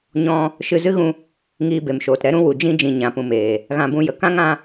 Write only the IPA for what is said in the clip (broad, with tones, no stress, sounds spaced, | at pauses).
ɲ ɔ̃˧ | ʃ ɨ˧ z ɨ˦ ɣ ũ˧ | ŋ iː˧ b e˨ m ʃ oː˨ t ɾ ɛ˧ ɾ ũ˧ w u˨ d͡ʒ ĩ˧ d͡ʒ ĩ˨ ɲ ã˨ p ũ˨ m eː˨ | ɣ ã˧ b ũ˧ j ə˨ k ã˦ ŋ ã˧